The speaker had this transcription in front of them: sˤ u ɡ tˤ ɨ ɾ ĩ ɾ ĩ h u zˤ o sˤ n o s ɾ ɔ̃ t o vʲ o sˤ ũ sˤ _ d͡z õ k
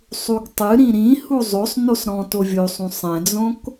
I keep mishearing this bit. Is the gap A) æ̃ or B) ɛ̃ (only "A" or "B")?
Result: B